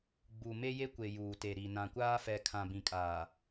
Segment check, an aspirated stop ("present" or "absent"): present